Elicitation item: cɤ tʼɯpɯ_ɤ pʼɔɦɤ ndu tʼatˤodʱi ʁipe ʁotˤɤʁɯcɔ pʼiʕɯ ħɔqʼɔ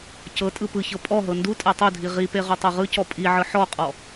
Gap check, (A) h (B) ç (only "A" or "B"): B